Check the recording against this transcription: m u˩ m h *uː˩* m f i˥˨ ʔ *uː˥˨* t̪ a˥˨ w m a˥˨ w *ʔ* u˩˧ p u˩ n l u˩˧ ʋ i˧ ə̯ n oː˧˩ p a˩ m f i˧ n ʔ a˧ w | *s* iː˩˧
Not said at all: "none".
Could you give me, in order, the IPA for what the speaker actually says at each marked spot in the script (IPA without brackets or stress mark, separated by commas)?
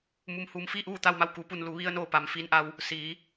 uː˩, uː˥˨, k, s